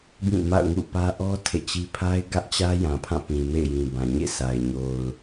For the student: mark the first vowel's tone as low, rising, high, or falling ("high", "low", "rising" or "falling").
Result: falling